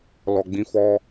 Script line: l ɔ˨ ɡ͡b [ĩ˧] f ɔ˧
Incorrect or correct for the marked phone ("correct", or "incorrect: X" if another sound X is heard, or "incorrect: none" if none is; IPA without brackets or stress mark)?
correct